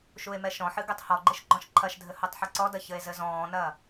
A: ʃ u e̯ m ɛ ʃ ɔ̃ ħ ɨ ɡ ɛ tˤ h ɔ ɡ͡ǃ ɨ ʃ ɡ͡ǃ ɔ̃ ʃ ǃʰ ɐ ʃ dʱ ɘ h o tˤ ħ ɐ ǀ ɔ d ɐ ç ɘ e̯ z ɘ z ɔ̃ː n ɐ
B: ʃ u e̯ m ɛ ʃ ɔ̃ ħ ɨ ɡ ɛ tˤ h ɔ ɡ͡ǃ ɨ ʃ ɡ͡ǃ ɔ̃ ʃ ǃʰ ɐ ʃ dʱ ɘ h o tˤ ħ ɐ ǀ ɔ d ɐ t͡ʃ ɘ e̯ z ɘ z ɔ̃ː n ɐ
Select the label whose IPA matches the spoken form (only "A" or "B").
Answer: A